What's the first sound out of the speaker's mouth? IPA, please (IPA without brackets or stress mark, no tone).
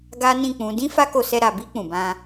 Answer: ɡ